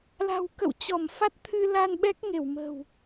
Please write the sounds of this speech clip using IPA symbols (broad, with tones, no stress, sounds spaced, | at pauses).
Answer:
l a̤˨˩ w k ə̰˧˨ w t͡ɕ ɔ˧˩ m f a˦˥ t̚ t̪ʰ ɨ˧ l a˧ n ɓ ɛ˦˥ k̚ ŋ e˧˩ w m ə̤˨˩ w